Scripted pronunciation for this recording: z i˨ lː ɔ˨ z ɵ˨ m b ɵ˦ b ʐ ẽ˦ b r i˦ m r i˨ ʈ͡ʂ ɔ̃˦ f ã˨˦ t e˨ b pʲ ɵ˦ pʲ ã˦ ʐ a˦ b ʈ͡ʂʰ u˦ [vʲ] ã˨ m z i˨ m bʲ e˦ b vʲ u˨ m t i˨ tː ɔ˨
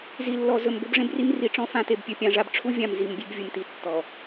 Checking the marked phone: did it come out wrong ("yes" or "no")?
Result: no